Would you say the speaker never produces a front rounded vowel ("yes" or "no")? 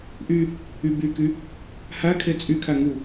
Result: no